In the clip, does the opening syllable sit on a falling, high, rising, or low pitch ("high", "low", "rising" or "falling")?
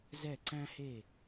falling